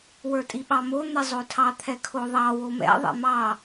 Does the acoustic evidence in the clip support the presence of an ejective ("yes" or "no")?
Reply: yes